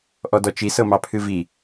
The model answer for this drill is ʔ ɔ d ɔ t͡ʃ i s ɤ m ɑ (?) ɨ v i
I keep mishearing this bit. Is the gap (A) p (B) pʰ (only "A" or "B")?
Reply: B